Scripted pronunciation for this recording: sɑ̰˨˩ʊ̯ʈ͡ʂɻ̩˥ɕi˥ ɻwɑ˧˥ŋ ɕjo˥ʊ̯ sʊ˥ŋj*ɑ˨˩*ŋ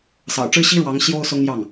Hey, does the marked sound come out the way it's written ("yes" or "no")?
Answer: no